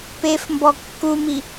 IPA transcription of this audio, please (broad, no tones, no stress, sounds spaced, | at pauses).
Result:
p e f m b ɔ kː u m i